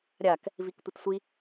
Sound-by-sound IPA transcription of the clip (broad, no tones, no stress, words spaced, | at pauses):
ɾʲak | viktʷɪtsʷi